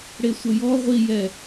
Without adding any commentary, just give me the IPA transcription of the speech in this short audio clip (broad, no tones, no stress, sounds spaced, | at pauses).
ɽ e sʷ ə j ɔ ʁʷ i j ɛ